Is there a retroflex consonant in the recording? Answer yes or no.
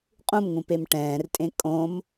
yes